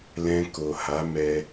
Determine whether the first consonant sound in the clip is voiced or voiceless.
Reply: voiced